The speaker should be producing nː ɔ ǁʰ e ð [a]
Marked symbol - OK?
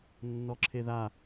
yes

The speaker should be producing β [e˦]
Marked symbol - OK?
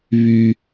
no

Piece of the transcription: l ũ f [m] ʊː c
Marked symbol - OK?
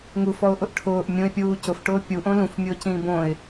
no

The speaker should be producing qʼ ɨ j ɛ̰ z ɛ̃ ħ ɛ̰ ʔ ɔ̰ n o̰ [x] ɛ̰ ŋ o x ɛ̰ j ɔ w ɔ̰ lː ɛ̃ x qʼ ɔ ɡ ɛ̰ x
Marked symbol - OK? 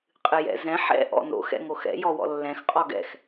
yes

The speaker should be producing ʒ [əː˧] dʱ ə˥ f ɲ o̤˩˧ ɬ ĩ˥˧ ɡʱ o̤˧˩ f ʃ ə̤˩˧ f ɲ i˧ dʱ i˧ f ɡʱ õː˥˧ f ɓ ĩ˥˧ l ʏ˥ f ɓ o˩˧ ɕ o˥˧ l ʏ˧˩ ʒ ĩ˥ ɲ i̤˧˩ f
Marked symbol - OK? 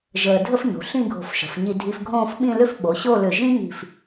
yes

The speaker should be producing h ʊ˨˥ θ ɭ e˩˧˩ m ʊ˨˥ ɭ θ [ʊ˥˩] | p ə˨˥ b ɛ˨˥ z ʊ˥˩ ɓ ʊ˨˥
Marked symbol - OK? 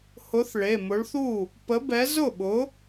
no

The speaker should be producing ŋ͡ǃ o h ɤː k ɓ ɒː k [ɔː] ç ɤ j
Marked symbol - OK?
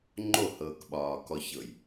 no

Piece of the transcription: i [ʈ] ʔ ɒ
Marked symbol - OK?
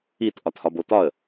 no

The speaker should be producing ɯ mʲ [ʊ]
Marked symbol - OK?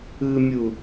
no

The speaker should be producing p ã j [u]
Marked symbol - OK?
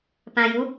yes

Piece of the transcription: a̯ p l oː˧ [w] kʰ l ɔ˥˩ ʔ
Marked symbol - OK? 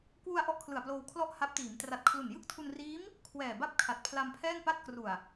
yes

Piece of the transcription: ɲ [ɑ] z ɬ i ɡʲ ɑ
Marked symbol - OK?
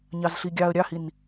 yes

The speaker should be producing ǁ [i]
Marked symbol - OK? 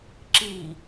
yes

